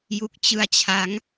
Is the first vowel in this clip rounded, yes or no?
yes